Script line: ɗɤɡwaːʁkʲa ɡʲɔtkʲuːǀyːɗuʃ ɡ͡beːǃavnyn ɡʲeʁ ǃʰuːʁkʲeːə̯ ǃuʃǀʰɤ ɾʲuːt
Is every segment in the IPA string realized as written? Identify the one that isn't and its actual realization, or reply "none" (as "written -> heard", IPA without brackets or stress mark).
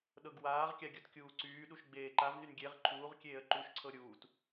none